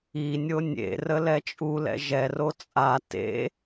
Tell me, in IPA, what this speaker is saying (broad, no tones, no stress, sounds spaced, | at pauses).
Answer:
i nʲ o nʲ ḛ r ə l ɛ t͡ʃʼ u l ɛ̰ ʒ ɛ r o t͡sʼ a t ḛ